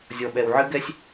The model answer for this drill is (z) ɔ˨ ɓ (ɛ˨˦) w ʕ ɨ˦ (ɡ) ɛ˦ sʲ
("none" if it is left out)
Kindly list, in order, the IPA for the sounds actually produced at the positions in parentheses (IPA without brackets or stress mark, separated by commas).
zʲ, ɛ˨, ɡ